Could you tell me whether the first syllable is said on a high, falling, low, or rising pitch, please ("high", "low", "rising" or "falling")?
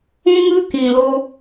high